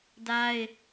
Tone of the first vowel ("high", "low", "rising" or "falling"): high